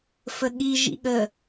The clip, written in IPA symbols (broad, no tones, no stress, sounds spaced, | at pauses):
f ə ɠ i ʒ ḭ ɠ ə